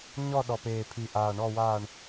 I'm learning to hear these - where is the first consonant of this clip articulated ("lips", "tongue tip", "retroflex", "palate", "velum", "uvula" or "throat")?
palate